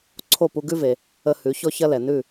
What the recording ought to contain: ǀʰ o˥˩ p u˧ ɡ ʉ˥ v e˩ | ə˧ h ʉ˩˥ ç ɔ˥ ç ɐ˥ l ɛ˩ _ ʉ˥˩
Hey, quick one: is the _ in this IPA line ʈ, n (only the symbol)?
n